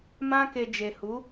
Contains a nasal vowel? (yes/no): yes